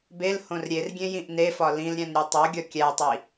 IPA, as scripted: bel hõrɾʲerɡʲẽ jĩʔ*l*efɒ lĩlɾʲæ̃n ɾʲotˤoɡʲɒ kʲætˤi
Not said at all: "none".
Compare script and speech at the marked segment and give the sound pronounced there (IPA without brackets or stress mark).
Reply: n